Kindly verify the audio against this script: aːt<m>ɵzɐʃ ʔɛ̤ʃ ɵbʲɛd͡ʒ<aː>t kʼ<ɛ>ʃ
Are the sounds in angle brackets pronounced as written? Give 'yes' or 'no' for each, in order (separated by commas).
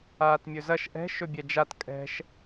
no, no, no